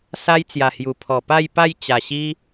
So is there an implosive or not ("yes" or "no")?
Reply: no